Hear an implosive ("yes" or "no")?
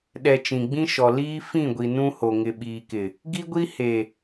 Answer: yes